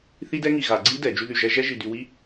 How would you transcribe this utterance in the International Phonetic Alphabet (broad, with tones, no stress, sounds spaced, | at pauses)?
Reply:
θ i˦˥ d ɛ˦˥ ŋ i˧˩ ɣ a˧˩˧ ɡ͡ǀ i˦˥ d ɛ˧˩˧ d͡ʒ y˧ ð y˧˩ ʒ ɛ˦˥ ʒ ɛ˦˥ ʒ i˧ d y˧ w i˦˥